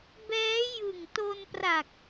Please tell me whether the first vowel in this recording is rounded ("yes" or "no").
no